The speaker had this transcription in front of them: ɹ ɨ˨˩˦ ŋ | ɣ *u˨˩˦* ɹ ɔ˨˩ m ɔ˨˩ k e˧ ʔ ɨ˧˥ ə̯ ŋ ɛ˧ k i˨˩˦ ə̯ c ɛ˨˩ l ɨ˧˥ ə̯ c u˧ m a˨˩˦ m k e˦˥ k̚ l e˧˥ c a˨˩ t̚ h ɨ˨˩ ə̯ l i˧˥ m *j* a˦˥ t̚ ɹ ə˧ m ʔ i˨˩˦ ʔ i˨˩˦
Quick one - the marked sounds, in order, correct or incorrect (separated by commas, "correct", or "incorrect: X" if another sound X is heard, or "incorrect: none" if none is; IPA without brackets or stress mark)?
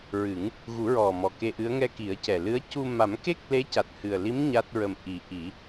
correct, incorrect: ɲ